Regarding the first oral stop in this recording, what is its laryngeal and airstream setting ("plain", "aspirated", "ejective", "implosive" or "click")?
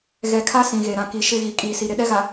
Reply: aspirated